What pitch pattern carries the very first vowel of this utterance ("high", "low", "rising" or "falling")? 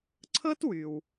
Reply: high